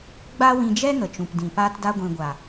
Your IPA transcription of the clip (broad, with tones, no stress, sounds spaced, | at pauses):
ɡ͡b a˦ w ĩ˧ d͡ʒ ɛ˦ ŋ ə˨ t͡ʃ ũ˨ p d ĩ˨ p aː˧ t d a˧ ɡʷ ĩ˨ ɡʷ a˨